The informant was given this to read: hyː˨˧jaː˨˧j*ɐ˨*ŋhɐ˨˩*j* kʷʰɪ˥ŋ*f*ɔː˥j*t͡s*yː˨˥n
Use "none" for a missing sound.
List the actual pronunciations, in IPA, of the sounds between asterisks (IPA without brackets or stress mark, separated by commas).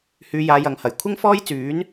ɐ˨, j, f, t͡s